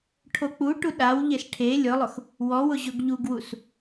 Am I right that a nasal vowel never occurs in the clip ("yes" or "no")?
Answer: yes